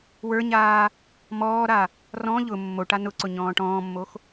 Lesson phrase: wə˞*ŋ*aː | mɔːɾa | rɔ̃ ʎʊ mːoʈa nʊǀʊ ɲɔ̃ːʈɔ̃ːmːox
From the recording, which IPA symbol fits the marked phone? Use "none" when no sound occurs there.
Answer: ɲ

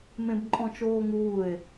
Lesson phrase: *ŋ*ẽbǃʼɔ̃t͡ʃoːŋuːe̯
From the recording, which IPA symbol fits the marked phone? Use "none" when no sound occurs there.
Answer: m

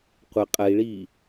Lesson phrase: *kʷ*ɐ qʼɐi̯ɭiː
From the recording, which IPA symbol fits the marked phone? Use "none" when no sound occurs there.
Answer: qʷ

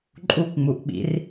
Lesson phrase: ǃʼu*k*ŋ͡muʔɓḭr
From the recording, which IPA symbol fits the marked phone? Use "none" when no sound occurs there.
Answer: k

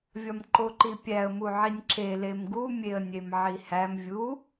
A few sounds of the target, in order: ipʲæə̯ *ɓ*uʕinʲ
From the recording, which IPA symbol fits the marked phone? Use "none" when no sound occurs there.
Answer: m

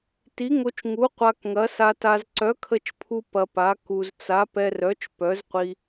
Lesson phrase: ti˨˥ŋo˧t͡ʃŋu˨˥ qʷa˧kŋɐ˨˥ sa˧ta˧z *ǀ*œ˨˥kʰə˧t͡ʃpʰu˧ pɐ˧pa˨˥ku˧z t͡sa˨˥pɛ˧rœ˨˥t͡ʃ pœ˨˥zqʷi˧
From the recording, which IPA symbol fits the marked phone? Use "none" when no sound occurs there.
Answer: ǀ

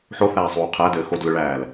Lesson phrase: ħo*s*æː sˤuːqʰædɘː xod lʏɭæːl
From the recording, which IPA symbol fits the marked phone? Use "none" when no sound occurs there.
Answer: θ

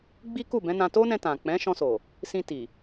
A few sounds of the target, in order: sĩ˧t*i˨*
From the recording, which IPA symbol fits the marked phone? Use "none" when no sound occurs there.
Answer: i˨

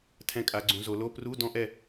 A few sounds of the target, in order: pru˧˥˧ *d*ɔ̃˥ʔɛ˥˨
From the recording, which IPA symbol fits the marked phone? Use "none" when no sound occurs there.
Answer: d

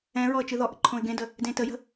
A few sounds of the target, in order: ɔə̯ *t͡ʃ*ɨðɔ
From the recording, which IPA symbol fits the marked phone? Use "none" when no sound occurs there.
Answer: t͡ʃ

